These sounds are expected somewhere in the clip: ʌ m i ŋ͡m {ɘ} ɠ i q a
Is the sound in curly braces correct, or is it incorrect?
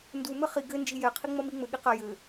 correct